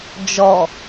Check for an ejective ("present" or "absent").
absent